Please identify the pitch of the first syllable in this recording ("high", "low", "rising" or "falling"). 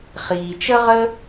low